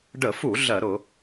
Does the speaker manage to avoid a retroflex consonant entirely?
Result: no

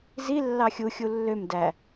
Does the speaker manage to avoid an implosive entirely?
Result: yes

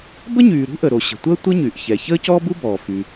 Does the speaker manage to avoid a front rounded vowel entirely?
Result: no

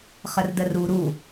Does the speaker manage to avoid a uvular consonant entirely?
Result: no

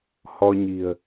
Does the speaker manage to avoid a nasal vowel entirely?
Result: yes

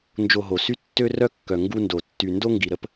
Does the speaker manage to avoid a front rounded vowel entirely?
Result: no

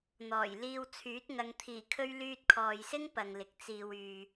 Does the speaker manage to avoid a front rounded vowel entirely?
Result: no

